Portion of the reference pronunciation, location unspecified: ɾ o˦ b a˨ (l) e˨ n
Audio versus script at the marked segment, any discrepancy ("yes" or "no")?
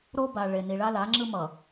yes